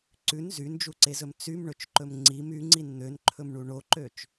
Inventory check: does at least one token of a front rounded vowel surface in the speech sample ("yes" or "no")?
yes